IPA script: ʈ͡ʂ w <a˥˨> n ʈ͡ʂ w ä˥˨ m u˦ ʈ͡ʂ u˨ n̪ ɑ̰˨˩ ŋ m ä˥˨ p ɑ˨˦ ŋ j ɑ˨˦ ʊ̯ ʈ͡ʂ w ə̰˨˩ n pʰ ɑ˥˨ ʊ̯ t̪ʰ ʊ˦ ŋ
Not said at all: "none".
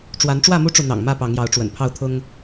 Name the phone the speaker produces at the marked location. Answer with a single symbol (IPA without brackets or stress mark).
a˨˦